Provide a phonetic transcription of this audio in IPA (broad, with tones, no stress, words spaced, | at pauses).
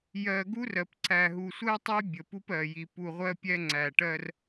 jɜ˨ɡu˦r ɜ˨pǀæ˨ ɦu˨sʷɜ˦tˤə˦j bʲə˨pu˦pɜ˨ji˨ pu˨ʁʷɜ˦pʲɛ˦ ŋ͡ǀæ˨ʈɜ˦r